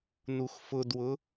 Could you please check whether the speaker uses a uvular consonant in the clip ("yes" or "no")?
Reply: no